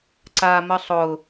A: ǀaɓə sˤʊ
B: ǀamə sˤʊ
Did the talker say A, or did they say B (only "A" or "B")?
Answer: B